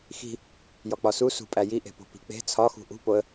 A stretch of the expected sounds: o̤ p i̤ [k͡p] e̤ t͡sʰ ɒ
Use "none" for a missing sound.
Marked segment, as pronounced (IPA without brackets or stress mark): k͡p